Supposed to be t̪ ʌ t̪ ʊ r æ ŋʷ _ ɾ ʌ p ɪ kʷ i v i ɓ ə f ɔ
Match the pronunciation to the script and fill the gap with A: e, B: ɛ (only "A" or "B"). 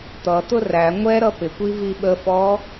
B